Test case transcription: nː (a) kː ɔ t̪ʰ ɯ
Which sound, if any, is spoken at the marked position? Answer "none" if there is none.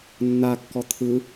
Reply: a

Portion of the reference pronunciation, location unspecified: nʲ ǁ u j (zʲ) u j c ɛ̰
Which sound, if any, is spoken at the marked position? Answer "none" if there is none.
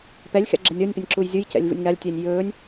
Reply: zʲ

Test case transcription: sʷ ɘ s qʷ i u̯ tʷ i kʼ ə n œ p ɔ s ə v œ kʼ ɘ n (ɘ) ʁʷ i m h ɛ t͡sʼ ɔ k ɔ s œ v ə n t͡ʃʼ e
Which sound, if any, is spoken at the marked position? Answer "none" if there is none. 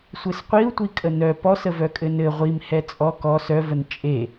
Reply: ɘ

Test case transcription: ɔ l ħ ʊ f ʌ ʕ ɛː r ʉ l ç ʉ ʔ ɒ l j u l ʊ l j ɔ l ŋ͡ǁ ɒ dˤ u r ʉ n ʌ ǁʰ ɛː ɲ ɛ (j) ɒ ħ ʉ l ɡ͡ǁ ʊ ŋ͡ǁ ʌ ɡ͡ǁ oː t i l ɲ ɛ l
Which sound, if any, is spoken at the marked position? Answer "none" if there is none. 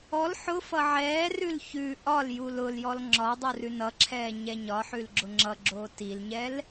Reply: ɲ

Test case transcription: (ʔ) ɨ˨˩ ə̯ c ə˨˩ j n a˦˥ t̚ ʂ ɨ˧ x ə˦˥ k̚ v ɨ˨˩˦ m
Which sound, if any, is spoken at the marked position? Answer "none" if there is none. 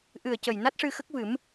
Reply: ʔ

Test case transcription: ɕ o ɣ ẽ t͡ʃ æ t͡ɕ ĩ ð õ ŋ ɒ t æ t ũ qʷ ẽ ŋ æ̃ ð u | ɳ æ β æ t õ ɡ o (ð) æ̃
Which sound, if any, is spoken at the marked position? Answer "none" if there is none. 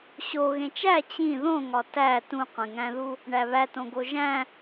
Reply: ʒ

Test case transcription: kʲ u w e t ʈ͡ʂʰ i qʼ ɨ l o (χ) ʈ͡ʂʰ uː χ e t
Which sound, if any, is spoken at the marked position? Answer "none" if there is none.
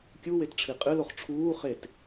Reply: χ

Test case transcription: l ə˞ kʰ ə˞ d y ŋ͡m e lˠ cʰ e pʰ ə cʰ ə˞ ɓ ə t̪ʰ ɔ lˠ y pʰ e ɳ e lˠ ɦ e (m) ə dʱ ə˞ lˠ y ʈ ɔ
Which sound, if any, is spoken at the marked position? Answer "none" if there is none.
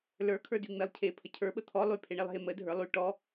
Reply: m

